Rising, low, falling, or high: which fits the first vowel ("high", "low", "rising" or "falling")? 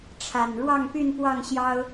low